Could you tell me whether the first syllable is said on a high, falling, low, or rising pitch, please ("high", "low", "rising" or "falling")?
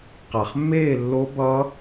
low